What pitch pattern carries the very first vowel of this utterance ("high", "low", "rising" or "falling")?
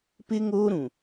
high